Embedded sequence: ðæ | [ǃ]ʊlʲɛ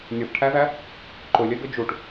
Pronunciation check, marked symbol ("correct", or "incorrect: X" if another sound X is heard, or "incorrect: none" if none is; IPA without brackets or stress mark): correct